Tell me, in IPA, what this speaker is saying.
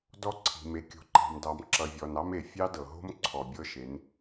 dɔ˦ǀʰi̤˨me˨ kʲo̤˨ǃɑ̤˨mdɑ˨m ǁʌ˨vʲɔ˨nɑ˦me˨ fʲɑ˦dɤ˨ɦo̤˦m ǀʰɔ˨bʲɤ˦ʃe˨˦n

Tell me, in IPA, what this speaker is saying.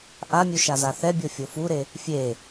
ʔamʲu ʃazaθɛbʲo fʲofuɾe | fʲe

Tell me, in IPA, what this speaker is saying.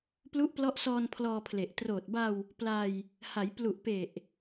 plu˦˥ʔplɔ˦˥ʔsɔː˧n pʰlɔː˧pʰle˨˩ʔ troː˨˩t̚ba˧w | pla˧j | ha˩˦j plu˨˩ʔpe˨˩ʔ

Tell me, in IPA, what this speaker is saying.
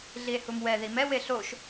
ɮie̯humwɛ ðimɛ weɬoʃ

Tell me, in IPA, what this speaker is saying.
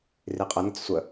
riqʼənət͡s sʷə

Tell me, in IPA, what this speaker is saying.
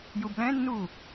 jublɛ̃nːu

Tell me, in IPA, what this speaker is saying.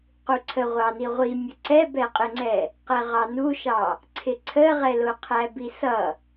quǀʰəʁʷɑni ʁʷimʲə ǀɛbɛqʼɪŋ͡ǀɛ | qɛʁɑnuʃɑ | ǀʰɪǀʰəʁɛlʊ qʰæbisʌ

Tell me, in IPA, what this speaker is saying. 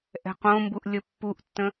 ʔɛ̤qõmbuʔ lʲəpːuʔtːə̃

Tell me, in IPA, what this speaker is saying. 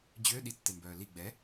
d͡ʑø ɗitːembœː li ɡ͡bɛ

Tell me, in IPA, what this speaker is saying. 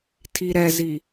tʰiɾɛzi

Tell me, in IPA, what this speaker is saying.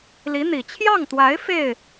li˧˥n̪i˨˩ t͡ɕʰjɑ˥˩ŋt̪wa˧˥ɪ̯ fe˥˩ɪ̯

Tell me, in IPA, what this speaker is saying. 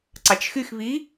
ǀɑt͡ʃxyxβi

